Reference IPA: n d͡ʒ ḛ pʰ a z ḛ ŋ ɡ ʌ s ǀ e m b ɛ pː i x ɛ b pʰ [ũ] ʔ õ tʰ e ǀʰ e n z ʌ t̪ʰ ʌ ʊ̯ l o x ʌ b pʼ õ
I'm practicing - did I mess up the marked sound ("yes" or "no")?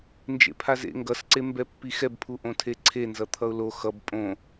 yes